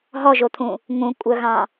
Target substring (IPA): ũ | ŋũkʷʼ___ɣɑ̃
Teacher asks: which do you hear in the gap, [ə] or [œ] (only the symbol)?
œ